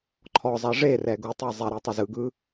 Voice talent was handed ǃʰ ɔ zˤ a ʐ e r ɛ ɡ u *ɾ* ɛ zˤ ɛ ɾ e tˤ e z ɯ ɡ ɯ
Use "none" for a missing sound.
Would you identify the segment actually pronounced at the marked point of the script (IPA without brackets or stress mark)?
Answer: tˤ